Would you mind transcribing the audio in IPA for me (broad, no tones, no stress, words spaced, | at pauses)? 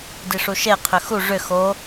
diʂuʃe qʰʏxu ʐʏ xo